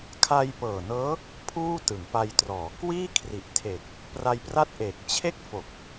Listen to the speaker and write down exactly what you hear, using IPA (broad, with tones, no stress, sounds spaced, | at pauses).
kʰ a˧ j p ɤː˨˩ n ɤː˦˥ | pʰ uː˥˩ t ɯ˩˦ ŋ p a˧ j t r ɔː˩˦ k w iː˥˩ kʰ r i˨˩ ʔ tʰ e˨˩ k̚ | p r a˧ j p r a˥˩ t̚ ʔ eː˨˩ k̚ t͡ɕʰ e˥˩ k̚ f o˨˩ k̚